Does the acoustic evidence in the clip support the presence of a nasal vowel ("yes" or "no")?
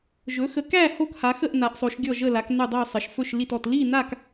no